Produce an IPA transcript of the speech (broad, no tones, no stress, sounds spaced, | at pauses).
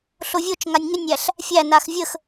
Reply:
ɬ o vʲ o t͡ʃ ŋ a nʲ ŋ ʏ nʲ æ ɬ | fʲ æ n a x vʲ ə x